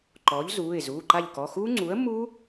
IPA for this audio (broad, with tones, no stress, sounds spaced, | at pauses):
ǃ ɔː˩˥ ʎ z uː˩˧˩ ɪ̯ z uː˩˧˩ ǃ a˦˨ ʎ k ɔ˩˧˩ x uː˦˥ ŋ͡ǀ uː˩˥ ə̯ mː uː˦˥